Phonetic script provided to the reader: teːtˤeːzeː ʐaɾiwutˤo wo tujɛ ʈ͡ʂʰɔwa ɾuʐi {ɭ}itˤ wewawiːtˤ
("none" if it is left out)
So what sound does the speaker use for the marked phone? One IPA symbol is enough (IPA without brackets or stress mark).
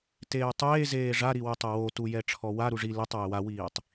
l